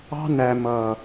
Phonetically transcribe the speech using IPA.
ɑ̤˦næ˨ mʌ˨

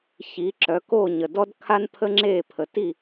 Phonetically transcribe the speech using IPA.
çi˩˥ǁœ˩˥ ko˥˩ɲə˩ dɔ˥d kʰa˥npʰə˥ŋ͡ǁe˥˩ pʰə˩ti˥˩

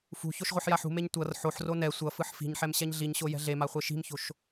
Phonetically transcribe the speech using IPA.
fṳçoʃ ʁʷeħjaħṳmeɲ tʷʌr ħoħro nɛ sʷʌfɯħ fi̤ɲħɛm ɕɛɲɮiɲɕo jɛ̤ɮema χʷeʃi̤mço̤ʃ

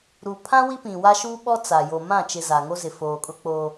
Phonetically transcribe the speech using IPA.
ɾu˨pʰã˦ wi˦pĩ˨wa˦ʃuː˦ ɓɔ˦ t͡sa˨ jo˨mã˦˨t͡ʃɪ˨ za˨ŋo˦zɪ˨ foː˨kʼʊ˦k͡po˦

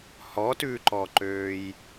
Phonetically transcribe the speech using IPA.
hɔtʉːǃɔǃøːj

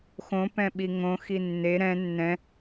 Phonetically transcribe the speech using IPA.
xõ pɛ̃ɓiŋõ xinːe ɾɛ̃ nːɛ̃

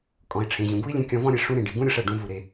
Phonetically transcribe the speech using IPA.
kʼɔ̃˩i̯ʈ͡ʂʰẽ˩ʑũ˩ɡu˥i̯ lʲẽ˧kʲɔ̃˧vɔ̃˥ɾʲe˩ ʂũ˥ɾẽ˩ ɖi˩ɡũ˥ɾʲɤ˧ʂɛ˩ ɖũ˧vu˩ɾe˩

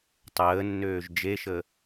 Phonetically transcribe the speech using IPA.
tˤəːnːøːʒ d͡ʒeʃə

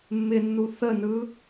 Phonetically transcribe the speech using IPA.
mːɪnːu θənɯː

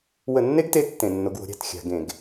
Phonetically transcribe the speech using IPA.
wə˧˩˧nːe˦ɡte˨˥ tːẽ˧˩˧nːo˨˥ɡwo̤˨˥ ɾʲa̤˧˩˧t xʲa̤˧˩˧ɡẽ˧˩˧ɡ

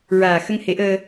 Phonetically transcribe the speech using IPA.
ɹaː˨˩ xə˧ŋhe˨˩˦ʔəː˧

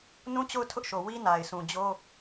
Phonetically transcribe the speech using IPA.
nũ˦t͡ɕo˦˨ʊ̯ tʰʊ˦ʔʃo˨ wi˦na˨ɪ̯sũ˨d͡ʑo˦

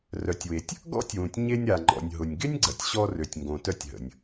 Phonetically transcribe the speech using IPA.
rœ˩tʲwe˩tʲ | ɡɔ̰˥tʲwũ˩tʲɲe˧nʲ ɾa˩ŋ͡ǃɔ̰˩nʲ ɦʊ˩nʲɡɪ˥nʲɡ͡ǀɐ˩tʲ ɕɔ˧rø˩tʲŋɡõ˩tœ˧tʲ ɦə̰˩nʲ

